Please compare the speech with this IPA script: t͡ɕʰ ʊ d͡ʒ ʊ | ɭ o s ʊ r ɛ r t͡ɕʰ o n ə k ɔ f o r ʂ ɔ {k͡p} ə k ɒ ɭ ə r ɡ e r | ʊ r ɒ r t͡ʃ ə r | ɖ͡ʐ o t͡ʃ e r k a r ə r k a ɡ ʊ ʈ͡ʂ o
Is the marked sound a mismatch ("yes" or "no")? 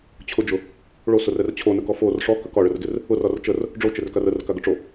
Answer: yes